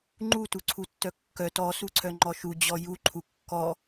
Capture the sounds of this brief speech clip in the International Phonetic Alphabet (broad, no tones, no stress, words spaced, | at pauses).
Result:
ŋ͡ǃutuǀʰu tːœkːœ tɔ suǀʰœŋ͡ǃɔʃu d͡ʑɔju ǃʰukːɔ